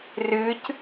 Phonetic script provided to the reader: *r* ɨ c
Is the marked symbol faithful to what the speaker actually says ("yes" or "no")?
yes